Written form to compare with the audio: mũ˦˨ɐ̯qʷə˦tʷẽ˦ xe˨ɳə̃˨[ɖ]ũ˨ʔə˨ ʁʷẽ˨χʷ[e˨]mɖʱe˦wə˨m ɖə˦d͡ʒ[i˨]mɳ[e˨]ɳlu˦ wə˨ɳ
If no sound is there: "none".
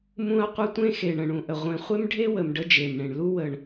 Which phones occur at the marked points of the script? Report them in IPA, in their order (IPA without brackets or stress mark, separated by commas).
ɳ, e˦, e˨, ẽ˨